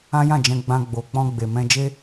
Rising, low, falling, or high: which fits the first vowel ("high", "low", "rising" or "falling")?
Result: high